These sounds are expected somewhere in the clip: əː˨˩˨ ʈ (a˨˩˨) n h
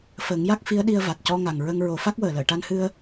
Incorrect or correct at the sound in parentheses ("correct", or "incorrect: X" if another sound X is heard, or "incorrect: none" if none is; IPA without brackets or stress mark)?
incorrect: a˧